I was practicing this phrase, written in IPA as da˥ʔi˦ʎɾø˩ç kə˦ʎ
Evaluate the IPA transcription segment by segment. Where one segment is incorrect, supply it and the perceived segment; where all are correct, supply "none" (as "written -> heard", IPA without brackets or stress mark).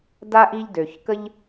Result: ɾ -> d